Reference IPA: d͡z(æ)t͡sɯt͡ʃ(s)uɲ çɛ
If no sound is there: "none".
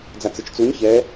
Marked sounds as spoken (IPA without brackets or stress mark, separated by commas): a, t͡s